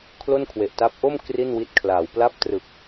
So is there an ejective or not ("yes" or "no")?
no